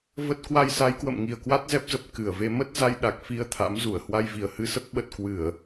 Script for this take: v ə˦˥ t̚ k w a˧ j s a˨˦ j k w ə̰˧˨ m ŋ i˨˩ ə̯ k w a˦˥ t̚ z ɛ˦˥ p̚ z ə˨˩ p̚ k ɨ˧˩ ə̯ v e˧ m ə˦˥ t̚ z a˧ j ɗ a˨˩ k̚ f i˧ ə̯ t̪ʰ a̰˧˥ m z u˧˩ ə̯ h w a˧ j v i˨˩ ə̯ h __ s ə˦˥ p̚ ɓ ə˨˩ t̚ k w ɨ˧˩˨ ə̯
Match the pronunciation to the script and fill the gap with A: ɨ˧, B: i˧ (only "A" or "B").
A